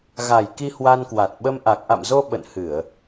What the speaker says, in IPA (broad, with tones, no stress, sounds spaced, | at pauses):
ɣ a˨˩ j k i˧ h w a˧ n k w a˨˩ t̚ ɓ ə˧ m ʔ a˨˩ k̚ ʔ a̰˧˨ m z o˧ ɓ ə̰˧˨ n h ɨ˧˩˨ ə̯